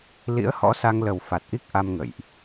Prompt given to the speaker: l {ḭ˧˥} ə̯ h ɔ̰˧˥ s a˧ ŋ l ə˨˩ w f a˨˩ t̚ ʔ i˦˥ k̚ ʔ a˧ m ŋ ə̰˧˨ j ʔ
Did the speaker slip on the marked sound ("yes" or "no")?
no